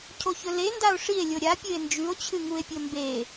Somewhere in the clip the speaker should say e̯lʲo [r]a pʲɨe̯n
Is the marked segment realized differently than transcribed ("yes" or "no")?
yes